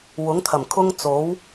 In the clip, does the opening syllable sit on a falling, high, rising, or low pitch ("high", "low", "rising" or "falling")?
rising